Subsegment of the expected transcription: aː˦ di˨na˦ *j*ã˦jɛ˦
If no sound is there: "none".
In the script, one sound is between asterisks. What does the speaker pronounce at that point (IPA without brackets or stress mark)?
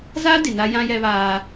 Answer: j